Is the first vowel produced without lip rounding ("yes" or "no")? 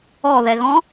no